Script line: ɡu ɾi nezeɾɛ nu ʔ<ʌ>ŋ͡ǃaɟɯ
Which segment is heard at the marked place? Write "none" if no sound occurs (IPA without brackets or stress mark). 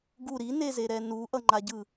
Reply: ʌ